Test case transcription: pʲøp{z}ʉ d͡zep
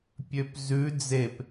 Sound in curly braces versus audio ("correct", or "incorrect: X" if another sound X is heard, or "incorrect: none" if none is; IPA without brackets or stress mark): correct